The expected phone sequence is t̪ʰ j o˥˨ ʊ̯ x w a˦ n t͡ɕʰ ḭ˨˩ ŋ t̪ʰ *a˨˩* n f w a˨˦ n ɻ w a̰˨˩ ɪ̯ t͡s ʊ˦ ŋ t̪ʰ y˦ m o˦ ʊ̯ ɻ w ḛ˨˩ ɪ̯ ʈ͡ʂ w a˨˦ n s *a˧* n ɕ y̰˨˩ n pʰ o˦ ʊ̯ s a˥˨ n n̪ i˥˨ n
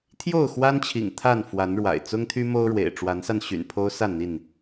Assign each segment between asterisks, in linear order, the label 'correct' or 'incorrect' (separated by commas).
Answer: incorrect, correct